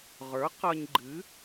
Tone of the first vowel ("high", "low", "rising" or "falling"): rising